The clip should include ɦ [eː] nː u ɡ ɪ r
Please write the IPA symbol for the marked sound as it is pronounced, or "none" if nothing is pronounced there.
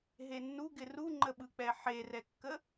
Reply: e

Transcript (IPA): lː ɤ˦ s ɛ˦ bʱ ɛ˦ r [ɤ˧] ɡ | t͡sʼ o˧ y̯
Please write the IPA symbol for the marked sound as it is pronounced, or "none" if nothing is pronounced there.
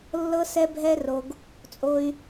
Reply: o˧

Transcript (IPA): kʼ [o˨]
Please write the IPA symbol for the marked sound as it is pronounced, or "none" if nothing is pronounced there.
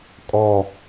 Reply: ɔ˨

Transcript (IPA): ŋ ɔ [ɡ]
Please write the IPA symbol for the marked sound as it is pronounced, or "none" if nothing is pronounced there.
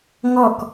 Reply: k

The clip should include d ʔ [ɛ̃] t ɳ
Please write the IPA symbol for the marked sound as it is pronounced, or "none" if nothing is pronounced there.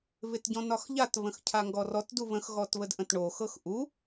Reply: ə̃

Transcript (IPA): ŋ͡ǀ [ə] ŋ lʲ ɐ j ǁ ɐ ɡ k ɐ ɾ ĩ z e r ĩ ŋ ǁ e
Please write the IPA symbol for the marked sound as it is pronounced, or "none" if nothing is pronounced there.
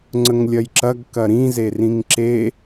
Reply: ə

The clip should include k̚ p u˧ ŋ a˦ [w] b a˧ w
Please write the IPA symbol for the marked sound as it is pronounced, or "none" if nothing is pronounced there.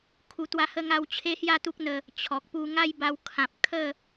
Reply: j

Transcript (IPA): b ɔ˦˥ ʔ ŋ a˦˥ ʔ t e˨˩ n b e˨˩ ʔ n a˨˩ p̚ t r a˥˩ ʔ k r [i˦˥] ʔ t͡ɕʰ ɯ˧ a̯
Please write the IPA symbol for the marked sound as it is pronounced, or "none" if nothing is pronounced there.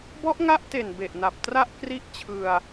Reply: i˦˥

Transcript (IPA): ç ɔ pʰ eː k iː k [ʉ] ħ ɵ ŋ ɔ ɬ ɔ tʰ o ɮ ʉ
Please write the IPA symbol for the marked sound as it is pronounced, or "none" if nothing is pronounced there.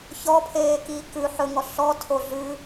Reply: ʉ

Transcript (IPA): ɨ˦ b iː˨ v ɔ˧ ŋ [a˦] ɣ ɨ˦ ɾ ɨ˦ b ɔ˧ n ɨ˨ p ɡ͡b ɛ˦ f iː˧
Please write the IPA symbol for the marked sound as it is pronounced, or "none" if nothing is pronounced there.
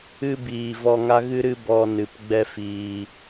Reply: a˦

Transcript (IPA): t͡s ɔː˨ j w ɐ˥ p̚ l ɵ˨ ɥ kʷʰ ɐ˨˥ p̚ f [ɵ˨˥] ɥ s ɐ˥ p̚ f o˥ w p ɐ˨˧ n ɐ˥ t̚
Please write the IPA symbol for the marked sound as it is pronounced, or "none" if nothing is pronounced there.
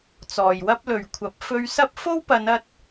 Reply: ɵ˧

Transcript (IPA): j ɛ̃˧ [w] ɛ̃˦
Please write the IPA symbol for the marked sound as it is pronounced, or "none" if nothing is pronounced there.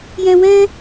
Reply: w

